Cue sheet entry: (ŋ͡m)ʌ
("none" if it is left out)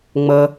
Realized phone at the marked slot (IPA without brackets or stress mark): ŋ͡m